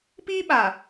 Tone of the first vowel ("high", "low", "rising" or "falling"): high